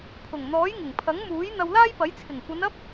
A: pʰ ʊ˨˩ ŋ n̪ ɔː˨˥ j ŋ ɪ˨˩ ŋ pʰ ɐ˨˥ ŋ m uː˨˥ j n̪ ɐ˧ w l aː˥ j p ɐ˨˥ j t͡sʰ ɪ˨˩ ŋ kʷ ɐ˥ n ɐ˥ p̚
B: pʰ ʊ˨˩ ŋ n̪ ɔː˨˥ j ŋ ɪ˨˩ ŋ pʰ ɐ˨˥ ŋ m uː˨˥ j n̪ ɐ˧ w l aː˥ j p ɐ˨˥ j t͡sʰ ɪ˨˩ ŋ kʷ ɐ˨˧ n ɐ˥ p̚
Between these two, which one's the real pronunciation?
B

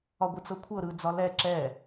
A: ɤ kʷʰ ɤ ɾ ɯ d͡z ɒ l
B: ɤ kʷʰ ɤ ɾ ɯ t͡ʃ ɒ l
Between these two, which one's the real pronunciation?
A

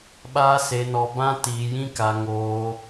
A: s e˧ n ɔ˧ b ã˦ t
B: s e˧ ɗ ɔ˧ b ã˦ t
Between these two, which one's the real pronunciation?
A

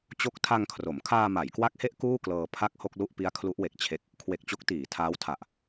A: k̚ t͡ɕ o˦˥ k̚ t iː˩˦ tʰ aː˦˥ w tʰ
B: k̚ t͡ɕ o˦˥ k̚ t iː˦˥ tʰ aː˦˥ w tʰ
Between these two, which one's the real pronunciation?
A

